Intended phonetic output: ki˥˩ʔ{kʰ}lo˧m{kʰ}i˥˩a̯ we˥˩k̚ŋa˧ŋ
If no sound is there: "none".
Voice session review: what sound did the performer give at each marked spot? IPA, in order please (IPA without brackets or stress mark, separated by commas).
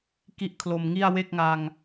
kʰ, ŋ